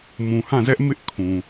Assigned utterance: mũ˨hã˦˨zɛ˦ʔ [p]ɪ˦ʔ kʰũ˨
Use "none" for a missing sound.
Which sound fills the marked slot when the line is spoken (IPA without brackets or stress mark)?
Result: m